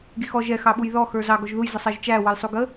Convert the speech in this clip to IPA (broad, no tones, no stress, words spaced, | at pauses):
ɡixɔ ʒɛ xɑɓujðɔ xə˞zɑ ɡɔʒðuj zəsˤɛʒt͡ʃæ wʌjsˤuɡə